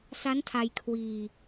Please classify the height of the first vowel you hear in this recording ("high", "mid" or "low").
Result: low